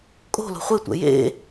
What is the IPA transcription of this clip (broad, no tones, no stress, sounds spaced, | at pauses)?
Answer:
kʼ o̤ l o̤ χʷ e tʷ ɛ̰ j ḛ